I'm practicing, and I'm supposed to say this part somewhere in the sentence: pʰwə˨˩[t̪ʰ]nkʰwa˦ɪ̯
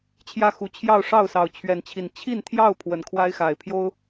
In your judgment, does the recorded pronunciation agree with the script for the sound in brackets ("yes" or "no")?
no